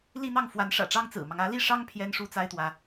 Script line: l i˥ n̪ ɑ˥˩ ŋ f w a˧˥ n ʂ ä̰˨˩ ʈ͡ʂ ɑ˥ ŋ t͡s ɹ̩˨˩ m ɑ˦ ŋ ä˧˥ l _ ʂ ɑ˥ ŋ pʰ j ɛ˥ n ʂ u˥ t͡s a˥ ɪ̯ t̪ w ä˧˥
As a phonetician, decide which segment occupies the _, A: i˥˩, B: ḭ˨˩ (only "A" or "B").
A